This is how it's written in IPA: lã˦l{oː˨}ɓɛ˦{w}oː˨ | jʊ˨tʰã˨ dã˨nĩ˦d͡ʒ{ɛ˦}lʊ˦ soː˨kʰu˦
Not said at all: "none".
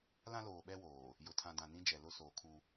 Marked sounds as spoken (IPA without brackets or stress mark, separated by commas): oː˨, w, ɛ˨